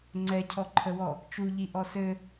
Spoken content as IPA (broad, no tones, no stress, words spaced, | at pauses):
ŋ͡ǀɛcʰɔǃʰəwɔ | t͡ʃuʎi ʔɔsɘ